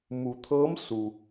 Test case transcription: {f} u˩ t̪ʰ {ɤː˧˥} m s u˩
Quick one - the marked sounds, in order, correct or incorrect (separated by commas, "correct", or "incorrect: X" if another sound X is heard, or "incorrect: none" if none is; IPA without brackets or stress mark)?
incorrect: m, correct